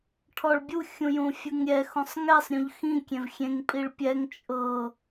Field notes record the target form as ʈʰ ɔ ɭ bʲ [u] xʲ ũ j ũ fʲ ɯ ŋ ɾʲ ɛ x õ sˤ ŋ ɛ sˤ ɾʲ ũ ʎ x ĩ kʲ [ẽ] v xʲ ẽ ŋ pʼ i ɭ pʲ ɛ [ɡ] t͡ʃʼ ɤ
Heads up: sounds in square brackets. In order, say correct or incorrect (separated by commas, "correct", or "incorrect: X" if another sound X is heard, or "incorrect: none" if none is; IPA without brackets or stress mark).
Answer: correct, correct, incorrect: ŋ